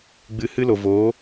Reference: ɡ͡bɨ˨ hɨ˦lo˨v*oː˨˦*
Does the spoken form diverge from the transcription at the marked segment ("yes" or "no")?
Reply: no